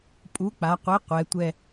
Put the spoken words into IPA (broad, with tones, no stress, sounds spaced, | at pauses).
pʼ u˨˥ k͡p a˩˧ qʷ e˨˥ qʷ ɛ˩˧ tʷ ɛ˥˧